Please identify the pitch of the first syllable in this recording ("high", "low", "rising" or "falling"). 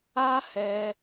high